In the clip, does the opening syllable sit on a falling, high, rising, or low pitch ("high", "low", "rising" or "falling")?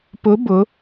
rising